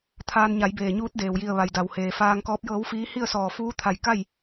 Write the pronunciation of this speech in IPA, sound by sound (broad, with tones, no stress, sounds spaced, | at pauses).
t̪ʰ aː˧ n ɲ a˩˧ j b eː˩ ɲ uː˧˥ t̚ d eː˩ w j i˧˩ ə̯ ʋ a˩ j d a˩ w h eː˩ f aː˧ ŋ k ɔː˧˥ p̚ j ɤː˧˥ w f iː˧˥ h i˥˨ ə̯ s ɔː˧˩ f uː˧˥ t̪ʰ a˧˩ j k a˥˨ j